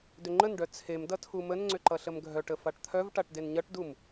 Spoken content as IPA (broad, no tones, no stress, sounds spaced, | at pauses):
d ʏ ŋ͡ǃ ə n ɖ œ t͡sʰ e m d ʌ tʰ u m ə n ŋ͡ǀ ʏ ǃ ʌ ɬ ə m ɡʱ œ ʈ ə f a ʈ t̪ʰ œ v ʈ a ʈ d e n ɲ ʌ ʈ d u m